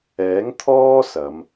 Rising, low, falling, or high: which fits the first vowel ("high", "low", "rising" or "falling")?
rising